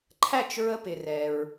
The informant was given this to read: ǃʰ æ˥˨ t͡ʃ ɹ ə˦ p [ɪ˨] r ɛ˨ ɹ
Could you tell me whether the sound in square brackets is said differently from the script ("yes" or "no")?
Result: no